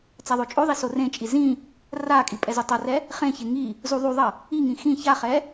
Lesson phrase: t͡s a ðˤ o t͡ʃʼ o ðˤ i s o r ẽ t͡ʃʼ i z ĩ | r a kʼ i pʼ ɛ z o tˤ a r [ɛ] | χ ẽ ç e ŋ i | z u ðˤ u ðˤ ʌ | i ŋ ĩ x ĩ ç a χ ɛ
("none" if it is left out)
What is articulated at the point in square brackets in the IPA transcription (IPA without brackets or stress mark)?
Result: ɛ